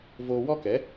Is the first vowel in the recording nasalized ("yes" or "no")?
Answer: no